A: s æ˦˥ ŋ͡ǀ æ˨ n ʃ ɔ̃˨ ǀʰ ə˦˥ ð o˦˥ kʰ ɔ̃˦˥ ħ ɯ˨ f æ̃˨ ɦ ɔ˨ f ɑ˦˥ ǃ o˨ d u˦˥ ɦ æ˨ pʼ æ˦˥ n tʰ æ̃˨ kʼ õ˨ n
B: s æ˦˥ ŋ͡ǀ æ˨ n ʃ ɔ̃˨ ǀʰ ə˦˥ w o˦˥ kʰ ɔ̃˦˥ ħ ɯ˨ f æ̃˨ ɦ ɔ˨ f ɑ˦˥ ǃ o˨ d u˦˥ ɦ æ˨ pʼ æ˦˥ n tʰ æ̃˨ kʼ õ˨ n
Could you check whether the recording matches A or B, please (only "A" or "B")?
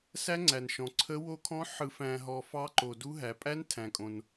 B